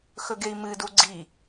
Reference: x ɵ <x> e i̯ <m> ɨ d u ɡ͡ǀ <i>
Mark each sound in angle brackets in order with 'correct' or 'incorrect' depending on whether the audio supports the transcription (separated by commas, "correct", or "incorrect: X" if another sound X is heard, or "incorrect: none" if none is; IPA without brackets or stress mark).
incorrect: ɡ, correct, correct